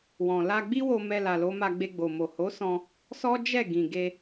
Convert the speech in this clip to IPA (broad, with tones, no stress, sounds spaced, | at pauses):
w ɔ̃˨ l a˧ ɡ͡b i˦ w o˧ m ɛ˧ l a˨ l o˨˦ m a˧ ɡ͡b e˧ ɡ͡b o˨ m o˨ h o˨˦ s ɔ̃˧ | s ɔ˦ d͡ʒ ɛ˦˨ ɡ ĩ˨ ɡ e˧